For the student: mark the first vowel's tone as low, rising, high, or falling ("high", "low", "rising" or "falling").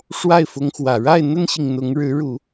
falling